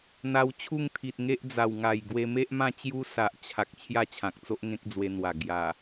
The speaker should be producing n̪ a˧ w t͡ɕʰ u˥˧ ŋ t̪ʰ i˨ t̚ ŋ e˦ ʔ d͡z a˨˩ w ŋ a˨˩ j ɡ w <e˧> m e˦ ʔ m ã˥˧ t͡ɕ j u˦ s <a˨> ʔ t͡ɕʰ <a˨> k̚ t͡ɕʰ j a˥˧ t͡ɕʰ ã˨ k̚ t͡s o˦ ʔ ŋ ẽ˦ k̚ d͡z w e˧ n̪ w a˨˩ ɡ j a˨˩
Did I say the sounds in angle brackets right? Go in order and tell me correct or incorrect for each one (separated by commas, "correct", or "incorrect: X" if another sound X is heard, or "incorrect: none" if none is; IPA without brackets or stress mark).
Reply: correct, correct, correct